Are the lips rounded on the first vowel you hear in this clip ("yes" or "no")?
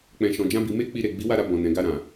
no